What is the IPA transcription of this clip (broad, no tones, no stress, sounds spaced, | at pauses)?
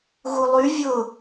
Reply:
ɣ u lˠ y vʲ ʊ